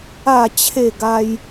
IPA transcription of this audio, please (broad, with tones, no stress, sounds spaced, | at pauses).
a˥˧ t͡ɕʰ e˥˧ ɡ a˦ j